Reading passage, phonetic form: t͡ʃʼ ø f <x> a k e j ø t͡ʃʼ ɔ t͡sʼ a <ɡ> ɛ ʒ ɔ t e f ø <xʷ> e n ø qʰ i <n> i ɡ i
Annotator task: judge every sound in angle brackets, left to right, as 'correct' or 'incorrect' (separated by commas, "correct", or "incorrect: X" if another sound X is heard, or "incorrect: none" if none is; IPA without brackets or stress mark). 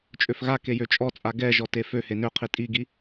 incorrect: ɣ, correct, incorrect: h, incorrect: tʼ